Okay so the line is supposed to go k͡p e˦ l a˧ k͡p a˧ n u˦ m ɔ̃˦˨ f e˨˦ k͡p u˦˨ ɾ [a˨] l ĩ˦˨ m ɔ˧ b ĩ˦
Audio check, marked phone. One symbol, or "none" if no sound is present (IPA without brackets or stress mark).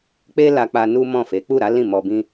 a˨˦